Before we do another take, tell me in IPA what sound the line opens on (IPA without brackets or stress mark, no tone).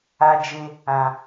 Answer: a